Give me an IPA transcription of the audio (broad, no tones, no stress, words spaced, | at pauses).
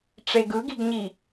ʈ͡ʂeɡɯɡiɡɲi